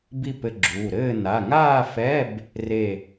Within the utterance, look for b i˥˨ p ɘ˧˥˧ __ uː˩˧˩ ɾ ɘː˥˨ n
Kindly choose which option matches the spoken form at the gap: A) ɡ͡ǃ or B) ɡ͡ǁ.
B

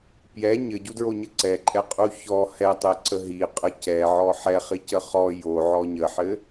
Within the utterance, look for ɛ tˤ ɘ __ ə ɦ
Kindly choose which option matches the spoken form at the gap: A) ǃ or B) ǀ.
B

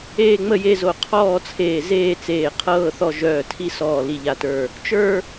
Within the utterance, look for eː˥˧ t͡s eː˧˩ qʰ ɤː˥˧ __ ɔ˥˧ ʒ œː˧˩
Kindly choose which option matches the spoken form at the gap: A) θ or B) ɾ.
A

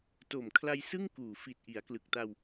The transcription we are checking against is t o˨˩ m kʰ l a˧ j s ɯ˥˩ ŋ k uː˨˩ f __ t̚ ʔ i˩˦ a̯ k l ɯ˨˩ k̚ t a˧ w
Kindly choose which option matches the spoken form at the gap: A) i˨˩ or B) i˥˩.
A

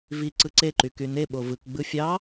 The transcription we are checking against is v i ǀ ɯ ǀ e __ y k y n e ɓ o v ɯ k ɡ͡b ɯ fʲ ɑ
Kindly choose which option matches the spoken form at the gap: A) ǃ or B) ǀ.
A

